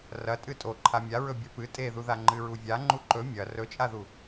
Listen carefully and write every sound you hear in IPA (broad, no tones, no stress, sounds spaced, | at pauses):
r ɐ tʼ ɨ tʼ o ǃʰ a mʲ a ɹ ɵ bʲ ɐ p ɨ tʼ e ð u ð a ŋ͡ǃ ɨ ɹ u vʲ a ŋ͡ǃ u ǃ ɵ mʲ ɐ r ɵ t͡ʃʼ a ð u